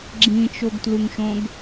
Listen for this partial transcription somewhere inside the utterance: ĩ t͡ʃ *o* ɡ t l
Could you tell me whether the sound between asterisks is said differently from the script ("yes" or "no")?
no